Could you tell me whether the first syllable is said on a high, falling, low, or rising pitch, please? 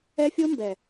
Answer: high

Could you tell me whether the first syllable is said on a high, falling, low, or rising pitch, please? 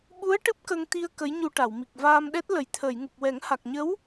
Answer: rising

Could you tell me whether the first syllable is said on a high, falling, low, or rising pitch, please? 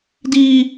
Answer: high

